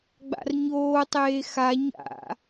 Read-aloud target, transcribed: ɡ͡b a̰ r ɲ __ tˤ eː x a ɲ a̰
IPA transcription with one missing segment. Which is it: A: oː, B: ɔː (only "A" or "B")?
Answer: A